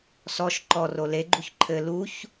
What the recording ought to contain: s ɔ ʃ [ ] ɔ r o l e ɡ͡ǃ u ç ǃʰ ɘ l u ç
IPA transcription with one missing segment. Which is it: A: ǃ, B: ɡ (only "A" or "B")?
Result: A